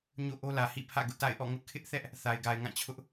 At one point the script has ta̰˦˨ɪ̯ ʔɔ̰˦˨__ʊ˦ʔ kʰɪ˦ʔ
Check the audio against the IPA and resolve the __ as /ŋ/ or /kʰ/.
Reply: ŋ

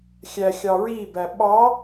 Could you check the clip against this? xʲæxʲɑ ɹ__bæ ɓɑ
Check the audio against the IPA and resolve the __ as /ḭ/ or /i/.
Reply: i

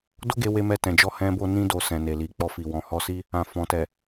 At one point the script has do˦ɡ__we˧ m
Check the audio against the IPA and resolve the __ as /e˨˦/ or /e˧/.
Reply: e˧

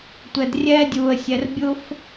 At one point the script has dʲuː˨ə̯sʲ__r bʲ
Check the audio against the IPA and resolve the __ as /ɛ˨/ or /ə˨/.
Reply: ɛ˨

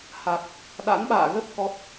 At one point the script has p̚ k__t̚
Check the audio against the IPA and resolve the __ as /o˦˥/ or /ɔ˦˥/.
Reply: ɔ˦˥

